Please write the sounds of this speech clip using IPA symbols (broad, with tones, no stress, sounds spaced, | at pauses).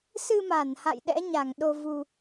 s ɨ˧ m a˧˩ n h a̰˧˨ j ɗ ɛ̰˧˥ ɲ a˧˩ ŋ ɗ o˧ v u˧